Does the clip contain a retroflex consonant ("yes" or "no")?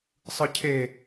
no